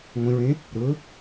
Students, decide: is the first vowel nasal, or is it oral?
nasal